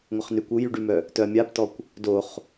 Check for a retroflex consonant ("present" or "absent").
present